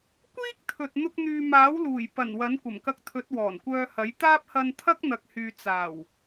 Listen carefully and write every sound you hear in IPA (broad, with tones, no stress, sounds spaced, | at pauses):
kʷ iː˥ k̚ t̪ʰ ɵ˨ t̚ n̪ ʊ˧ k̚ n̪ yː˨ m aː˨˥ w l uː˨˩ j p ɐ˨˩ n w ɐ˨˥ n kʷ ɐ˨˩ m k ɐ˧ k̚ t̪ʰ ɵ˨˥ t̚ w ɔː˨˩ n kʷ œː˧ h ɐ˨˥ j t̪ aː˥ p̚ h ɐ˧ n t̪ʰ ɐ˥ k̚ n̪ ɐ˨ k̚ h yː˨ t͡s aː˨˩ w